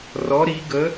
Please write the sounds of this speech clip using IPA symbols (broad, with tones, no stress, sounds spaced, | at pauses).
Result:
r ɔ˨˦ ɾ i˨˦ ɡ ə˨˦